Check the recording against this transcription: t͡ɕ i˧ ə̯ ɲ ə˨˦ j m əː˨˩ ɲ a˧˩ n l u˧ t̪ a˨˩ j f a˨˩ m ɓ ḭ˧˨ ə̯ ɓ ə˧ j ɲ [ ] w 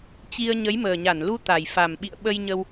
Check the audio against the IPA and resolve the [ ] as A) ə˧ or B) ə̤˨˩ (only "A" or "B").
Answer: A